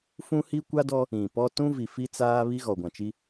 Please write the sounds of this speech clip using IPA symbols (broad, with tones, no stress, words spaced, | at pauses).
fũ˦hi˦kʷa˦dɔ˦ | ĩ˨pɔ˦ tũ˦vi˨ fi˦t͡saː˦βi˦ ɣɔ˨ɡʷã˨t͡ʃi˦